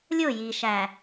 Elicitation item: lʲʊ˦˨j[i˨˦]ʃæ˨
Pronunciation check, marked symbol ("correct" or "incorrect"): incorrect